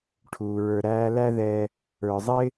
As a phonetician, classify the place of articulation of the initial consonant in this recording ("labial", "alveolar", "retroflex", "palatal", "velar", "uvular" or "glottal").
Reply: retroflex